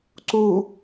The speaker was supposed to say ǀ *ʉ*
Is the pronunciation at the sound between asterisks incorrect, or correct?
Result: incorrect